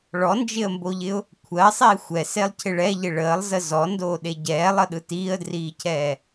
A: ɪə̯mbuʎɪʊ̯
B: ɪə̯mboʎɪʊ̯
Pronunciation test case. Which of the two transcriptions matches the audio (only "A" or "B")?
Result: B